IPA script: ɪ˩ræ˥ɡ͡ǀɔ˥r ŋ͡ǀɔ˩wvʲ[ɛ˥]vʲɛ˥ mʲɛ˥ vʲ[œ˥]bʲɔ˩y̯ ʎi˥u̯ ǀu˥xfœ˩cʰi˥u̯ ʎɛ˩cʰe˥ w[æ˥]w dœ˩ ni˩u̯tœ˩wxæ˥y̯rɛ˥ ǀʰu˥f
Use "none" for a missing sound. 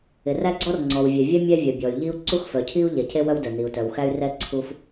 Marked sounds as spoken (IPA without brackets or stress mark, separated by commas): ɛ˩, œ˩, œ˥